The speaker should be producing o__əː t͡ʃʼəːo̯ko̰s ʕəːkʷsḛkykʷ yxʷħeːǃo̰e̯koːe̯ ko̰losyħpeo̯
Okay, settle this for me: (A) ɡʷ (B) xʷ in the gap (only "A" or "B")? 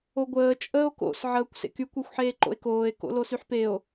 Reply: A